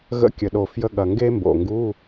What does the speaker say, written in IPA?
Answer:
ɣ ə̰˧˥˧ kʲ ə˨˩ ɗ o˨˩ f j ə˧˥˧ ɠ ɐ˨˩ ŋ ɡ e˥ m b o̰˨˩ ŋ ɡ u˧˥˧

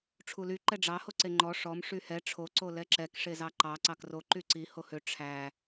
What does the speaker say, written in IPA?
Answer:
ʈ͡ʂʰ u l y ǃ ɛ ɖ͡ʐ ɑ h o ǀ e ŋ͡ǃ ɔ ʂ ɔ m ʂ y h ɛ ʈ͡ʂʰ o ǀ o l ɛ ǁ ɛ k ʂ e z ɑ ǃ ɑ ǀ ɑ k r o ǃ y ǀ i h o h ø ʈ͡ʂʰ æ

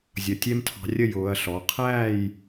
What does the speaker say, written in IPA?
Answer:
zʲ ʌ˩˧˩ tʲ ɛ˦ m tʰ ɑ̤˨˦ rʲ ə˥˨ j ʊː˨˦ ɐ̯ ɬ ɔ˩˧˩ qʰ æː˥˨ j

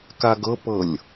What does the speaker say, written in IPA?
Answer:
k a ɡ ɤ p ɤ lʲ

